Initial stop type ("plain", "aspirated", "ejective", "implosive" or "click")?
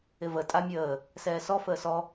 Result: ejective